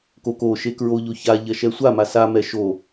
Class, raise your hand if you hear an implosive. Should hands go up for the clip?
no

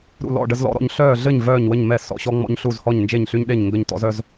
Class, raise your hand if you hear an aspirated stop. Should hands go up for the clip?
no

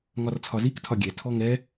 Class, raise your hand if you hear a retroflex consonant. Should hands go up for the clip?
no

